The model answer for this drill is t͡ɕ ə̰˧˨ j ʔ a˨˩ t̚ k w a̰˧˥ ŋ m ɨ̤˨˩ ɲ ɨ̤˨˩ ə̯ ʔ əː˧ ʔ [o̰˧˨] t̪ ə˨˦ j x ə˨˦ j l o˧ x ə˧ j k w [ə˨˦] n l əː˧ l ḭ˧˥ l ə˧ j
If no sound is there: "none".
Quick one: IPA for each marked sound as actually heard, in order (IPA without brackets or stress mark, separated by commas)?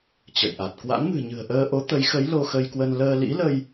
o˨˦, ə˧